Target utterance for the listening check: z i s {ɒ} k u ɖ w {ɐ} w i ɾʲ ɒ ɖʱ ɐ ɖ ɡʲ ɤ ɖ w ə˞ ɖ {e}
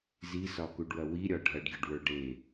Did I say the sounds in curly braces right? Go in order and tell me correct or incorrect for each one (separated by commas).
correct, correct, correct